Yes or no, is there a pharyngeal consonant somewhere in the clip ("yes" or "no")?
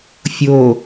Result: no